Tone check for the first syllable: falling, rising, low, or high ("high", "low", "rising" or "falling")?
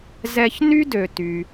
high